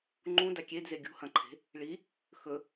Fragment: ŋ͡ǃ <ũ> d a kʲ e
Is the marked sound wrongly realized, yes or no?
no